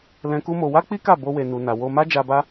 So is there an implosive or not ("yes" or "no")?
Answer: no